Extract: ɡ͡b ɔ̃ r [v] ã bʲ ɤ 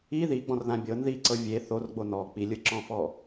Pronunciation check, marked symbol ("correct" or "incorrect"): incorrect